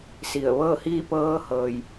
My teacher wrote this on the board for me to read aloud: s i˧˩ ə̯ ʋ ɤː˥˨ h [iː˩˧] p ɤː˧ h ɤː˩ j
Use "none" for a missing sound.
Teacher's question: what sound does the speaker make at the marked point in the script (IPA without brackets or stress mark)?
iː˥˨